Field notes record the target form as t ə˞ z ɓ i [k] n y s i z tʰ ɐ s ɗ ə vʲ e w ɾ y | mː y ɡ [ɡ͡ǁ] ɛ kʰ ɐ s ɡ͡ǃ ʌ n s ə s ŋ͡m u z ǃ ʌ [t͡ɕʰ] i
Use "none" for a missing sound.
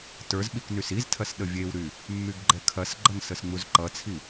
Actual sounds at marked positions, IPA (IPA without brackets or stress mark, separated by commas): k, ɡ͡ǃ, t͡sʰ